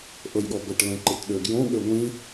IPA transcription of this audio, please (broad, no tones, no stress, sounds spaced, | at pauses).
ʔ ɤ j ɠ ɔ b ə ʈ l ɛ̃ ǃ i t ɗ ø ɡ j õ ɠ ø ŋʷ ĩ